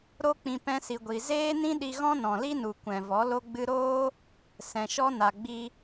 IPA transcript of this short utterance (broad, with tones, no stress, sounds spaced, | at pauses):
ɾ o˦ k͡p ĩ˧ p ɛ̃˧ s i˨ ɡʷ i˧ z eː˦ n ĩ˦ ɗ i˧ ɣ ɔ̃˦ n ɔ̃˨ l i˦ n u˨ kʷ ɛ̃˨ v ɔ˨˦ l o˧ ɡ͡b ɨ˧ ɾ oː˦ | s ɛ̃˨ ʃ ɔ˧ n a˨ ɡ͡b i˧